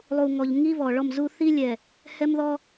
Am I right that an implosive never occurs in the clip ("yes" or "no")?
yes